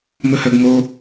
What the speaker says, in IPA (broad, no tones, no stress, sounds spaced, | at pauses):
m ɵ h œ ɡ ŋ o